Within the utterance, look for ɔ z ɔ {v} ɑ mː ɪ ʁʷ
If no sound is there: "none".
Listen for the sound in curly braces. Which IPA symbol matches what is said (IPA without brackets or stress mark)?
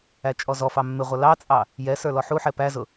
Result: f